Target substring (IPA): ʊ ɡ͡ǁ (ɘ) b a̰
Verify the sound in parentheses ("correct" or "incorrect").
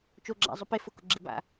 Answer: incorrect